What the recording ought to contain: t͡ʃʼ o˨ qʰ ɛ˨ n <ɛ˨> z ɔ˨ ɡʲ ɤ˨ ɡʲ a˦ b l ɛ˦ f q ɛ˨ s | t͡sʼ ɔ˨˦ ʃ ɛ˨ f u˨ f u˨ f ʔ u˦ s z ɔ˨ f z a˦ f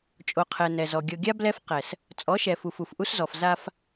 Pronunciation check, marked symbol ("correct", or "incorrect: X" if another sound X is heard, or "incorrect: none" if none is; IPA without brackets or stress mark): correct